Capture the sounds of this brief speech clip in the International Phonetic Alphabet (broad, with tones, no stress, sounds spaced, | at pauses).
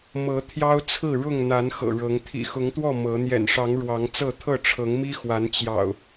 m ɤ˨˦ t̪ʰ j ɑ˦ ʊ̯ t͡sʰ ɹ̩˥˨ ɻ ʊ˥˨ ŋ n̪ a˨˦ n x ɤ̰˨˩ ɻ ɤ˨˦ ŋ t̪ʰ ḭ˨˩ x ʊ˨˦ ŋ t̪ w ɔ˥˨ m ɤ˨˦ n̪ j ɛ̰˨˩ n ʂ ɑ˨˦ ŋ ɻ w ɑ˨˦ ŋ t͡s ɤ˥˨ t̪ʰ ɤ˥˨ ʈ͡ʂʰ ɤ˨˦ ŋ m i˦ x w a˨˦ n t͡ɕ j ɑ̰˨˩ ʊ̯